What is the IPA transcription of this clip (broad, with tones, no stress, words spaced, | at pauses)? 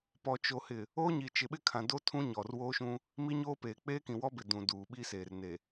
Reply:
pɔ˨t͡ʃo˨hɪ˨ | oː˦ɲi˨ t͡ʃɪ˨ɓɪ˦kʰã˨do˦ tʰũ˦ɲɔ˨rwoː˦ʃũ˦ | mi˦ɲoː˦peː˨ k͡peː˦kĩ˨wɔ˦bɪ˨ dũ˨ duː˨ɓi˦ seː˨rne˨